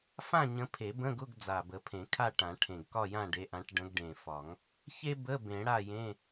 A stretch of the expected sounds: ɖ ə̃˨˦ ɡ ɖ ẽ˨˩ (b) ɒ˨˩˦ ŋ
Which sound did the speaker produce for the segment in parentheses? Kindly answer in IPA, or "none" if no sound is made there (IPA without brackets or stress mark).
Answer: f